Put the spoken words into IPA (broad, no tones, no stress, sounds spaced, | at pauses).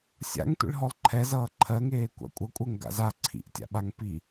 sʲ a̰ ŋ tʷ ḭ ɭ ɦ ɔ lˠ ǃʰ ɛ z ʌː ǃʰ ɜ ŋ eː kʷ a̰ kʷʼ ʌ kʷʼ ɜ ŋ ɡ a̰ z a ǀʰ ḭ ʔ tʲ a̰ ɓ a ŋ p i